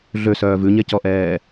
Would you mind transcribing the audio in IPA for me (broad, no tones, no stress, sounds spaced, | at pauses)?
ɮ ø s œː v ʉ ɲ ɛ c ɔ ʔ ɛː